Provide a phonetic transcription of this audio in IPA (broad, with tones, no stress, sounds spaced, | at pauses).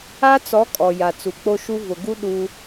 a˦ t͡s ɔ˨˦ kʼ ɔ˨ j a˨ t͡s u˨ k͡p o˦ ʃ u˦ v ʊ˨ ɡ u˦ ɗ u˦